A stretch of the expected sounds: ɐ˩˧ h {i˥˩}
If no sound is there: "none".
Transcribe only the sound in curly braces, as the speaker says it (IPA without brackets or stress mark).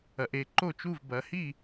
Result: i˥˩